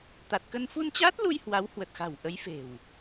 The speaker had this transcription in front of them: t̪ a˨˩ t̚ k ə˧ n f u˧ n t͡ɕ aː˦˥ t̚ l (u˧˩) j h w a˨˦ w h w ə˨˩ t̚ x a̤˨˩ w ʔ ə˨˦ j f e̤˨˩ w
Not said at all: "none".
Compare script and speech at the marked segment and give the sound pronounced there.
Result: u˧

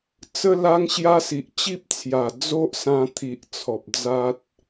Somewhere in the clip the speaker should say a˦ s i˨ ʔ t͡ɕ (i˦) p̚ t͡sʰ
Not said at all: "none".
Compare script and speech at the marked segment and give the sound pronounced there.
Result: i˦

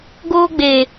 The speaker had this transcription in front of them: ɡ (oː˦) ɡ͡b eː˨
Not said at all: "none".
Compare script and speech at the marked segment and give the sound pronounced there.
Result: oː˦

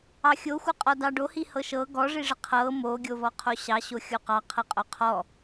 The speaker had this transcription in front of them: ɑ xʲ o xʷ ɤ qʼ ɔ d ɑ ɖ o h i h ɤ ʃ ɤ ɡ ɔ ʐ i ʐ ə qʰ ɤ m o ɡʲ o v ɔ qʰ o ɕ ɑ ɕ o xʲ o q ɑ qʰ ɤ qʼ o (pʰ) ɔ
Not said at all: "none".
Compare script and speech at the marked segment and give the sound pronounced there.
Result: qʰ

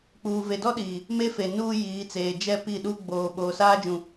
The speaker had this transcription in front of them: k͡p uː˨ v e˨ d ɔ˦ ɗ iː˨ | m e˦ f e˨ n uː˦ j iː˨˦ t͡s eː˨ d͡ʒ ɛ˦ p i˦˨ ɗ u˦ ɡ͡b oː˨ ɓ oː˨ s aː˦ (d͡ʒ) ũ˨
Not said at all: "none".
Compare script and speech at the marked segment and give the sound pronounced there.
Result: d͡ʒ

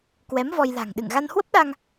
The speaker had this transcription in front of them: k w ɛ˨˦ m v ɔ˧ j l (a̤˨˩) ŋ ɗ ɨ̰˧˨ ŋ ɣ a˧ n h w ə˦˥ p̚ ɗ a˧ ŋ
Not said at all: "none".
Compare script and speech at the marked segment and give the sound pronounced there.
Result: a̤˨˩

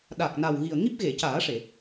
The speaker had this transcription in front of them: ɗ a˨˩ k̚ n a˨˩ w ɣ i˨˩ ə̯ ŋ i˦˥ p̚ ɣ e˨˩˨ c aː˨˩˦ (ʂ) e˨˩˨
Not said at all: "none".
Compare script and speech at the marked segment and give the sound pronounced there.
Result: ʂ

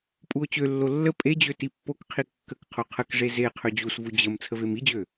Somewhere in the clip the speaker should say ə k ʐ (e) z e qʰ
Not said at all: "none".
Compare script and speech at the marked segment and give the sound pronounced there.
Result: e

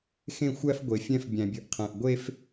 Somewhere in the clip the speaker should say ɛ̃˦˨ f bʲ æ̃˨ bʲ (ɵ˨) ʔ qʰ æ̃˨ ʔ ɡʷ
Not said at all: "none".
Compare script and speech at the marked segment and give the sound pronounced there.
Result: ɵ˨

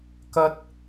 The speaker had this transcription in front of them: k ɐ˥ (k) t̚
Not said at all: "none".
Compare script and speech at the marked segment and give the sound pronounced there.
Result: none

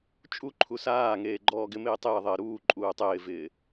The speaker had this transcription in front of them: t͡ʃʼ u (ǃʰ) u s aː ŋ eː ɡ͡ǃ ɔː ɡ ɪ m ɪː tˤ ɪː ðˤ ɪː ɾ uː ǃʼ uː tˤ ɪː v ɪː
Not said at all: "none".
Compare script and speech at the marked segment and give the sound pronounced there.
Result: ǃʰ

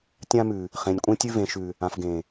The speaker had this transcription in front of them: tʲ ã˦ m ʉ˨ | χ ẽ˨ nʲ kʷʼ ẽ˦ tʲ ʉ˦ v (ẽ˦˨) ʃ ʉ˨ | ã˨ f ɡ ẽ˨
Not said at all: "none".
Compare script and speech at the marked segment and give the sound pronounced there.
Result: ẽ˨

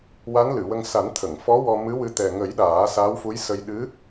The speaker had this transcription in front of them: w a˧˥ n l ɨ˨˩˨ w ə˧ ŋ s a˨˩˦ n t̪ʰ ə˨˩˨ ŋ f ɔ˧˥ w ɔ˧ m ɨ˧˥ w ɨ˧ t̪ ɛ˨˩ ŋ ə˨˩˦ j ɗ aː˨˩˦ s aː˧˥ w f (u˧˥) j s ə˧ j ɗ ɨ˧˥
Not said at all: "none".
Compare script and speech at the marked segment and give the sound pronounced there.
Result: u˧˥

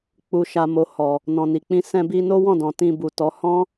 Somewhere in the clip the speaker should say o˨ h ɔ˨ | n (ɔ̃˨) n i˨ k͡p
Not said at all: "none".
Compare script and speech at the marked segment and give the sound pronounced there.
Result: ɔ̃˨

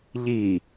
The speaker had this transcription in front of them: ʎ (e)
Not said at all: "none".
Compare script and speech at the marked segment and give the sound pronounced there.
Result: i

